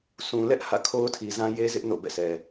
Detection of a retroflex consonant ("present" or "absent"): absent